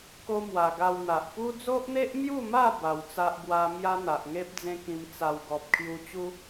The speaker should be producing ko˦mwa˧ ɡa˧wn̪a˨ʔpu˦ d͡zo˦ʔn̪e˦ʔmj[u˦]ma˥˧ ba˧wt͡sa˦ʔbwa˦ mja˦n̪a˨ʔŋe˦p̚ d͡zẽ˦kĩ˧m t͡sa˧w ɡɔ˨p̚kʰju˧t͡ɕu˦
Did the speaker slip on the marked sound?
yes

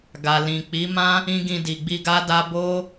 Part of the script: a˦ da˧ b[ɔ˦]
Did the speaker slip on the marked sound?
yes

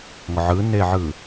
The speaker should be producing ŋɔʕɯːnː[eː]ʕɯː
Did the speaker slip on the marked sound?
no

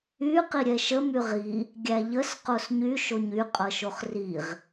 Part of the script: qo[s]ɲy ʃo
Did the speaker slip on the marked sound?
no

